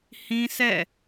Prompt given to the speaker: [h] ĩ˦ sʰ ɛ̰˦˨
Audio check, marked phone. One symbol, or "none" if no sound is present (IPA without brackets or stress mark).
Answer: h